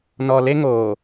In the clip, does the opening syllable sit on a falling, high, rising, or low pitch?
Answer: low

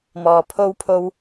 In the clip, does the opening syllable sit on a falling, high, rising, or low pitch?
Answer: low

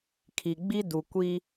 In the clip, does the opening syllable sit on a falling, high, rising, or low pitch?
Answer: low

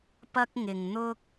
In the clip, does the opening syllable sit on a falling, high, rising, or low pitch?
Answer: high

